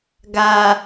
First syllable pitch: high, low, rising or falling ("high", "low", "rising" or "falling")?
low